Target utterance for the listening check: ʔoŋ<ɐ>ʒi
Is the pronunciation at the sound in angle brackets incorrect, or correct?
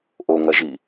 correct